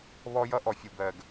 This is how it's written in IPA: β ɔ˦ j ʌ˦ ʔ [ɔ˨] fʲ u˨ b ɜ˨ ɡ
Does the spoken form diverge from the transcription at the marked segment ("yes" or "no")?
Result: no